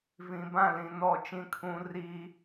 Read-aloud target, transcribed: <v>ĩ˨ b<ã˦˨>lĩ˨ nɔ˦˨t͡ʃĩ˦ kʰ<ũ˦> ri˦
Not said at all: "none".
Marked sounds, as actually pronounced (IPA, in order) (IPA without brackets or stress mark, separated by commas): v, ã˦˨, ũ˦